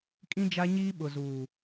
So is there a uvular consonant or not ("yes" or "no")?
no